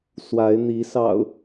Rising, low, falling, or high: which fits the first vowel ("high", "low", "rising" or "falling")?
rising